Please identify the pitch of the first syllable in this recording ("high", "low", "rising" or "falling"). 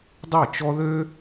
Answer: falling